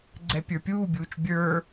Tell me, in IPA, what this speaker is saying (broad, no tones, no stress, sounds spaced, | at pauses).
ɡ͡ǀ ɛ pʲ ə˞ pʲ uː bʲ uː t͡ʃ bʲ ə˞